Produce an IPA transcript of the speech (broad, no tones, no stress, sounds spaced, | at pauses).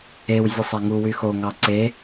e w zʲ ɯ sˤ æ ŋ u w y x o ŋ ɑ ǀ e